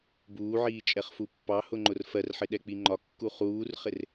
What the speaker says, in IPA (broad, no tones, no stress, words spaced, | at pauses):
buːʕiː t͡ʃʼɛχfupːɑhʊ ŋ͡ǃʊrfɜrħɪ ɗɛk͡piŋ͡ǃɒkːu χuːrχɪr